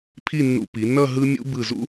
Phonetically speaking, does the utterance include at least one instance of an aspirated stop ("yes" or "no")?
yes